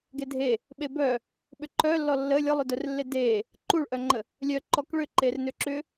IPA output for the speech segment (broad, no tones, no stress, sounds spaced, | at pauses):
ɡ e dʱ e | ɓ e b œ | ɓ ʏ ǃ œ lː ɔ lː ə lʲ ɔ lˠ ʏ d œ r lː e d e | ǃ u ɭ ʔ œ ŋ͡ǃ ə | lʲ œ ǃ ɔ k ɭ ʏ ǃ e r n ʏ ǁ ʏ